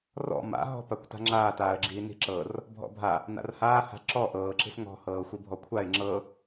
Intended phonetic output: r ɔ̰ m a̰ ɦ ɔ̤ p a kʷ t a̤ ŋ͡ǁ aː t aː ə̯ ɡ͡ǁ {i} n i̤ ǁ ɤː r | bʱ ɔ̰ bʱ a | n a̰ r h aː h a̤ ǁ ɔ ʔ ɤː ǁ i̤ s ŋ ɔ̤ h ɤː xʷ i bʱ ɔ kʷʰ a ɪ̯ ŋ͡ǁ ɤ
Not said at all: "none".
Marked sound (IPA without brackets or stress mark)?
iː